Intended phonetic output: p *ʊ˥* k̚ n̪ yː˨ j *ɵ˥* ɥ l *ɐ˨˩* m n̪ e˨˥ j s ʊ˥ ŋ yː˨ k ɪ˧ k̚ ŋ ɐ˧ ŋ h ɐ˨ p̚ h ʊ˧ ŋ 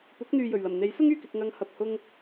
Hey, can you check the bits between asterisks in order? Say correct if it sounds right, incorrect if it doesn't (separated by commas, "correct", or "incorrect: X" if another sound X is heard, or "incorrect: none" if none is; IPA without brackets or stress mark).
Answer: incorrect: ʊ˨˥, incorrect: ɵ˨˩, correct